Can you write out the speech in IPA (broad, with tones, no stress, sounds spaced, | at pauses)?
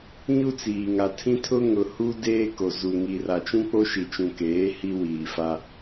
ɲ u˦ t͡s iː˨ ŋ a˨ tʰ ĩ˦ tʰ ʊ˦ ŋ ʊ˨ h u˦ d eː˦ k o˨ z u˨ ŋ i˨ r a˨ t͡ʃ ũ˦ k͡p o˦ ʃ i˨ t͡ʃ ũ˨ k eː˨˦ h i˦ w iː˨ f a˦